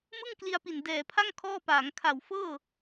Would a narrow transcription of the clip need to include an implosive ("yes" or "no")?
no